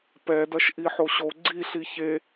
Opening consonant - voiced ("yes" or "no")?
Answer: no